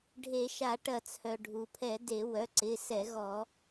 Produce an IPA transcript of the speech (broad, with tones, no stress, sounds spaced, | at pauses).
ɖʱ e˧˩˧ ʃ a˧˩˧ ʈ ɐ˧˩˧ t͡sʰ œ˩ ɖʱ u˩ pʰ ɛ˧˩˧ d e˧˩˧ w œ˩˧˩ ǀ ɪ˩˧˩ s ɛ˧˩˧ ɣ ɔ˧˩˧